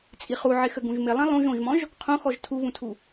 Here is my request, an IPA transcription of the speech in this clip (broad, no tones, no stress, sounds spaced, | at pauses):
t͡sʼ i χ u ʕ ɪ x ə ɡ ũ ʒ m ɪ lˠ ĩ lˠ ũ ʒ õ ʒ m ɔ̃ ʒ | qʰ õ x ɔ ʒ tʰ u β ũ tʰ u